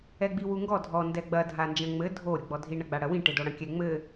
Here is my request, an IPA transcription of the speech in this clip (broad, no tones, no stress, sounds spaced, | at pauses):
ɛ ɡ͡b i w u ŋ ɡ ɔ dʱ ɔ n d ɛ ɡ͡b ɐ dʱ a n d͡ʒ ɐ̃ ŋ͡m ɘ dʱ o ɾʲ o ɡ͡b ɔ dʱ i ɳ ɐ ɡ͡b a ɽ ɐ w ĩ ʈ e d o ɽ ɐ̃ kʲ ɛ ŋ͡m ɘ